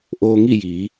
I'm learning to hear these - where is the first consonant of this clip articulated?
throat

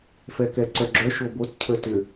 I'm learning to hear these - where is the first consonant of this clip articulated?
lips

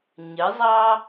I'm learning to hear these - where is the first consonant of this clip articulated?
palate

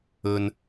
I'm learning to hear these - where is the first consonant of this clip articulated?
tongue tip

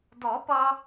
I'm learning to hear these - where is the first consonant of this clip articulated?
tongue tip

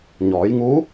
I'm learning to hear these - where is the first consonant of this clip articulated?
palate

